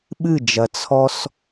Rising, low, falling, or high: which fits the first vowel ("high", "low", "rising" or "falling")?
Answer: falling